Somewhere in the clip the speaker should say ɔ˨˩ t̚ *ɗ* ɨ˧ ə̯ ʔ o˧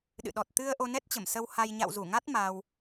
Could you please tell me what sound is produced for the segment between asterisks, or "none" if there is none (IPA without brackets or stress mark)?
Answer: t̪